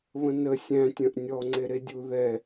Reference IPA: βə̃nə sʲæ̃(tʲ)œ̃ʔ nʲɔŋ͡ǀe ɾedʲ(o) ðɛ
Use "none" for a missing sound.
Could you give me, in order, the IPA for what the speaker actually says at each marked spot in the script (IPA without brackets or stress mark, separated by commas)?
tʲ, u